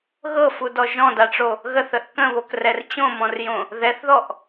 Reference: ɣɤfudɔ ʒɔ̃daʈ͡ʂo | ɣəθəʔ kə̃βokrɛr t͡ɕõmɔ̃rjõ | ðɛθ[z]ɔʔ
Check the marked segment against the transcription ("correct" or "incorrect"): incorrect